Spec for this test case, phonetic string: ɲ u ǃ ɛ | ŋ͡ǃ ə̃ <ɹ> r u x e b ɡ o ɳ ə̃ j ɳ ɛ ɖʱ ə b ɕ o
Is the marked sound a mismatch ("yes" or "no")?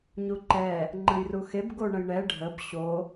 yes